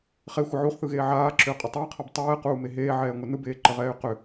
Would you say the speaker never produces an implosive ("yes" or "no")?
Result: yes